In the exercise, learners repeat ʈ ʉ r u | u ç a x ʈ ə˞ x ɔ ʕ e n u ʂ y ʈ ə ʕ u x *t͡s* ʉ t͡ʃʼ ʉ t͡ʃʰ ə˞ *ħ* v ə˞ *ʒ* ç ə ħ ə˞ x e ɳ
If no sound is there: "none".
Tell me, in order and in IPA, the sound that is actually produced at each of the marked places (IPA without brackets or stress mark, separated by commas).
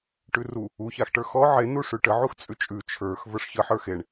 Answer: t͡sʼ, x, ʂ